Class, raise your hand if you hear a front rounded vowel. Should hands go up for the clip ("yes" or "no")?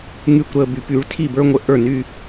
yes